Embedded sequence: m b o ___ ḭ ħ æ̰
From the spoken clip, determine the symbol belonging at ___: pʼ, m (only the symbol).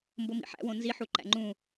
m